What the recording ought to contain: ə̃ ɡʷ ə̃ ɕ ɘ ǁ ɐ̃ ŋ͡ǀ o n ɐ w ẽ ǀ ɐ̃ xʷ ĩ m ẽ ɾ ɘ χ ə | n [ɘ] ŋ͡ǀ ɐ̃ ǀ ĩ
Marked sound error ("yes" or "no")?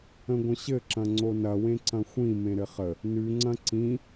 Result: yes